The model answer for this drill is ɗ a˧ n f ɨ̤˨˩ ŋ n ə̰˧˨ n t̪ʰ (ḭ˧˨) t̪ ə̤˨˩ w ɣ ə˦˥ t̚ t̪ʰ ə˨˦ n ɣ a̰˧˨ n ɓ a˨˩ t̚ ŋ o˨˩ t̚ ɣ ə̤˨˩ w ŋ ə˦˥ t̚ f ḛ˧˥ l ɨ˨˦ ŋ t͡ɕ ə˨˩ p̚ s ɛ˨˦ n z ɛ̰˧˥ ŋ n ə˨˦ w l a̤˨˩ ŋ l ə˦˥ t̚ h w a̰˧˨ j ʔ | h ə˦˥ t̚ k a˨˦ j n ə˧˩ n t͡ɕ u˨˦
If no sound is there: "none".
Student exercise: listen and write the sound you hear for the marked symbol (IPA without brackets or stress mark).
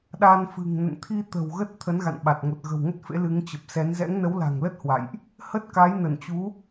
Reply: i˧